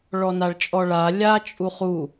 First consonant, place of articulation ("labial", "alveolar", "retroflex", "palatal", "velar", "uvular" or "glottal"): retroflex